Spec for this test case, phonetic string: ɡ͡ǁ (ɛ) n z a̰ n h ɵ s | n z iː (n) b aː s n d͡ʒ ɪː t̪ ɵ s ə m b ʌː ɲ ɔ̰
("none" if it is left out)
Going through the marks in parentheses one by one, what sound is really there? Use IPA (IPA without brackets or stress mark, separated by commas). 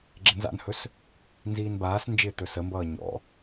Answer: ɪ, n